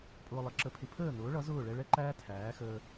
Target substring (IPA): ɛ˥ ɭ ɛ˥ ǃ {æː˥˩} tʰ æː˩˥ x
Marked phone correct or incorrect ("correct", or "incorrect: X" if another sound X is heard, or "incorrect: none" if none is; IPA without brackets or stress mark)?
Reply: incorrect: æː˥